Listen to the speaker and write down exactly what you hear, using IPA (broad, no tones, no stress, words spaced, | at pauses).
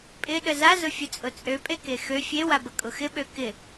pʼɪ ɗəza zʊfʲʊt͡sʼʊt͡sʼø pʼekexø fʲe wabəkʼʊxɪ ɓøkɪ